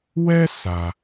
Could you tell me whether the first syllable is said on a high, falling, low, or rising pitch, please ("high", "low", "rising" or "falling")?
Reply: high